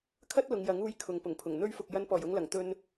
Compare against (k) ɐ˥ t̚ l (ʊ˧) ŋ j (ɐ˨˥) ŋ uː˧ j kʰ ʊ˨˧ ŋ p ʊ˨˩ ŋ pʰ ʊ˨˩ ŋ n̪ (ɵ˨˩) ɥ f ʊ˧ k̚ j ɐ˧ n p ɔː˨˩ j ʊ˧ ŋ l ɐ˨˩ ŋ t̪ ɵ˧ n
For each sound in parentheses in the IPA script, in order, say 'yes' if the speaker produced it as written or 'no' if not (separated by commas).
no, no, yes, no